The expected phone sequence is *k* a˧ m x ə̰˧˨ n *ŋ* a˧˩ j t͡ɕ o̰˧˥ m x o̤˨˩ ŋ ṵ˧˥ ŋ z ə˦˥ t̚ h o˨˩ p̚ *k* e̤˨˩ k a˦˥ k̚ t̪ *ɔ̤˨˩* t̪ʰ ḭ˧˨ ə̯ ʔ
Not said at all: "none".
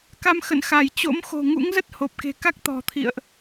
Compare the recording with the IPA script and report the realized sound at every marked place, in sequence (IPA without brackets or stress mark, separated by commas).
k, x, k, ɔ̤˨˩